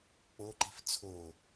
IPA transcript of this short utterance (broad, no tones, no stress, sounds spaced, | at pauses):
k͡p o ǃ i̤ f t͡sʰ o